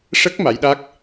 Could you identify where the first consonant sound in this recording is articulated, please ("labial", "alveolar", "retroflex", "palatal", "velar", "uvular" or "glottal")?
retroflex